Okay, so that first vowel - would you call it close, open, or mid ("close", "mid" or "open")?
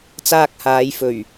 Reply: open